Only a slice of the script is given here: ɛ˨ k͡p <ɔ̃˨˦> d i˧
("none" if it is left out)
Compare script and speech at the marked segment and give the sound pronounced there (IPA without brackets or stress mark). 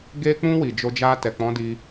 ɔ̃˨˦